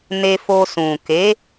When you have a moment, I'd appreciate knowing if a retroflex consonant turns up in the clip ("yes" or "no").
no